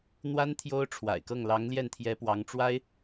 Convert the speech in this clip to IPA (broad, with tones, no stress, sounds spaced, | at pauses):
n̪ w a˥ n t̪ʰ j o˥ ʊ̯ ʈ͡ʂʰ w a̰˨˩ ɪ̯ k ɤ˥˩ ŋ l ɑ˧˥ ŋ l j ɛ˥˩ n t̪ʰ j ɛ˧˥ p w ɑ˧˥ ŋ ʈ͡ʂ w a˥ ɪ̯